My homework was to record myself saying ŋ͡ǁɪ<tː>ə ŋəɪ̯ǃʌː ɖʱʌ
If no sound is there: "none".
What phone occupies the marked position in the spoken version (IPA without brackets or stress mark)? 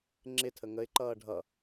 tʰ